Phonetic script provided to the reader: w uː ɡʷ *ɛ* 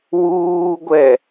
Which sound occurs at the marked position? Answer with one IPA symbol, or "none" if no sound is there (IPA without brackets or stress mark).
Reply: ɛ